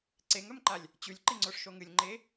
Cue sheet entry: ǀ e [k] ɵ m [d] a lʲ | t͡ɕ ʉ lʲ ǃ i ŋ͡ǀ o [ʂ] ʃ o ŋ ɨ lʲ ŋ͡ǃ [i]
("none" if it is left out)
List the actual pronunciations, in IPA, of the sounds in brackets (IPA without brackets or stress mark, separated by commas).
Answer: ŋ, ǃ, ʂ, e